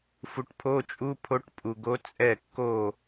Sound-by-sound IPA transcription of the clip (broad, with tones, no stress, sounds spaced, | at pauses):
f u˨ ʈ pʰ o˧˥˧ t͡ʃʼ u˧˥˧ pʰ o˧˥ ʈ pʼ u˨ ɡ o˧˥ t͡sʼ ɛ˥˩ kː o˥˩